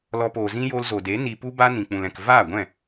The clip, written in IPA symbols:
l ɔ˧ p oː˨ z ĩ˦ j o˧ l z o˨ d e˨˦ n i˧ p u˦ b a˦ n ĩ˨ k͡p ũ˨ l ɛ̃˨ k v aː˦˨ ɡʷ ɛ̃˦˨

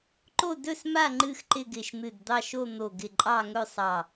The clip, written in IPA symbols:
ǃ o˥˨ d ɵ˥˨ s m a˥˨ ŋ͡ǃ ɨ˥˨ x ǃ ɪ˥˨ ɡ ɪ˧˩ ʃ n̪ ɨ˧˩ d d̪ ɑ˥˨ ʃ o˥˨ n̪ o˧˩ ɡ ɪ˧˩ ǃʼ ɑ˥˨ ŋ ɵ˥˨ sˤ ɑ˧˩

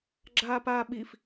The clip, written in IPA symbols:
ɡ͡ǁ aː p aː ɓ i f

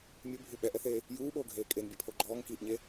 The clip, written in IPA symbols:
mʲ u bʱ u ɓ ɛ ʔ ɛ θ eː | j uː ɓ oː ɡʱ eː kʼ e n bʲ ɛ pʰ o ɡ͡ǃ ɔː ŋ k iː ʔ ɲ e

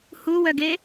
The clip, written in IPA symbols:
h u w œ ɡ e

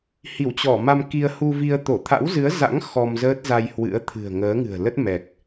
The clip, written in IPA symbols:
h i˧˩ w t͡ɕ ɔ˧˩ m a˧ m k i˧ ə̯ h u˧ v i˧ ə̯ t̪ o˧˩ t̪ʰ a̰˧˥ w z ɨ˨˦ ə̯ z a̰˧˥ ŋ x ɔ˧ m z əː˦˥ t̚ z a˧ j h w ɨ̰˧˥ ə̯ t̪ʰ ɨ̤˨˩ ə̯ ŋ əː˨˦ ŋ ɨ̤˨˩ ə̯ l ə˦˥ t̚ m ɛ˨˩ k̚

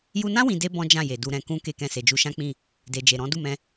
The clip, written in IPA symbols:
j u˧ n ã˦ w ĩ˧ d e˦ b ɔ̃˦ d͡ʒ ã˦˨ j e˨ d u˧ ɾ ɛ̃˨ k ũ˧ k e˧ k ɛ̃˧ s e˨ d͡ʒ u˧ ʃ ã˦ k͡p ĩ˦˨ | d e˨ d͡ʒ e˨ ɾ ɔ̃˨˦ d u˦˨ m ɛ̃˧

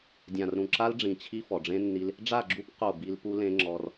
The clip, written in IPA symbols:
dʲ ã˨ r ɾ ũ˨ ǁ a˦ l ɖ͡ʐ ĩ˨ t͡ɕʰ i˦ f ɔ˨ ɖ͡ʐ ẽ˦ nː i˦ l | ɖ͡ʐ a˦˨ ɡ͡ǁ u˦ p q o˦˨ b i˦ l p u˦ l ẽ˦ ŋ͡ǁ ɔ˦ r

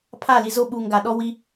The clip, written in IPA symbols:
pʰ a˦˨ l i˨ z o˦ ɓ uː˨ ŋ ɡ a˨ ɗ ɔ˦ w i˦

